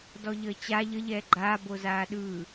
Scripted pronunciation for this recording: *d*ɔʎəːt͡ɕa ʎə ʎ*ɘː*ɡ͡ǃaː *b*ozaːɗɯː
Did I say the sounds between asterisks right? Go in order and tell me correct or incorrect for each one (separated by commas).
correct, incorrect, correct